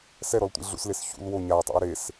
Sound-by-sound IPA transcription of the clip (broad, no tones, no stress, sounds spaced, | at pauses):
s ɛ ɾ ɔ l tʷ ḭ ɮ ṵ s l e s ç ṵ l w o ɲ a ʊ̯ tˤ ṵ j ɾ e s